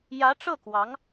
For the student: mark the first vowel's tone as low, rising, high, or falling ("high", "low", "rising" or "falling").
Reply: rising